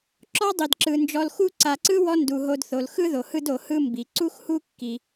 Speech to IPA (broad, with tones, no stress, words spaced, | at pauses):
ǁɔ˥dˤi˩dǁɯ˩ nd͡ʒɔ˨lxu˦ ǀa˨ǀɯ˥wɔ˦ ndu˩ɦo˨dθo˩l xɯ˥ðo˩hɯ˦d o˩hɯ˦ mbi˩ ǀu˥xhu˥ kːi˩